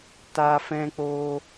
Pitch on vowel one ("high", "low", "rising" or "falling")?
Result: high